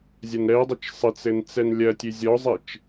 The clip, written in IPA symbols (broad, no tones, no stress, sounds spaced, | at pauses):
zʲ ɐ n ɾ ɛ dˤ ɐ t͡ʃ sˤ ɘ t͡s ɘ n t͡s ɛ n lʲ ɐ tʲ ɨ zʲ ɔ zˤ e t͡ʃ